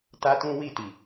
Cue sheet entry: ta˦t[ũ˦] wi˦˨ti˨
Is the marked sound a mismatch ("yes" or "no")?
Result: no